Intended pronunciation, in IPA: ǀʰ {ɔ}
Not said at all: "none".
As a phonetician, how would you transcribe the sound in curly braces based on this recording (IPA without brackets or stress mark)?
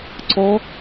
ɔ